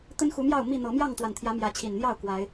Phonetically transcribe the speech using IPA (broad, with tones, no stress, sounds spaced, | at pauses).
t̪ ə˦ n x u˨˦ m j ɑ˥˨ ʊ̯ m i˥˨ n̪ ɤ˨˦ m j ɑ˥˨ ŋ t̪ w a˨˩ n t̪ʰ j ä˨˦ m j ä˨˦ t͡ɕʰ i˨˩ n n̪ j ɑ˥˨ ʊ̯ k w a˨˦ ɪ̯